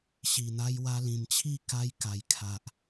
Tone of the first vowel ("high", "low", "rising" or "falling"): low